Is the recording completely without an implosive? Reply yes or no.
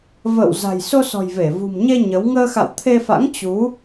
yes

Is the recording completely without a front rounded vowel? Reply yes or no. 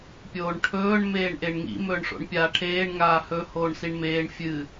yes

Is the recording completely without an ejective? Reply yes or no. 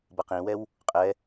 no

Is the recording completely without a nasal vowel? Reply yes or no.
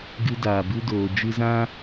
no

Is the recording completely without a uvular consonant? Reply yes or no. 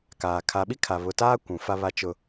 yes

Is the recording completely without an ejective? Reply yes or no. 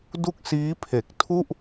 yes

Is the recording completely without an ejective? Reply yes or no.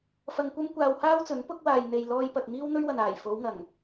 yes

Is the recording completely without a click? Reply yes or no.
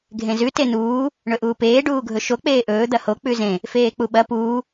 yes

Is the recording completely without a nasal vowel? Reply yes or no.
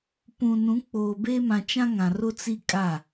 no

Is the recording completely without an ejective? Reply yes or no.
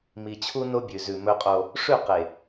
no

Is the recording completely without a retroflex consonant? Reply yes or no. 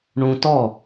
no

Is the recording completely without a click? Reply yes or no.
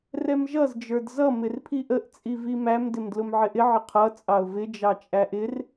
yes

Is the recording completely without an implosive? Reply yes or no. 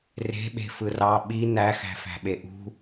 no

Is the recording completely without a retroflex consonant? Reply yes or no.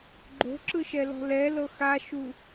yes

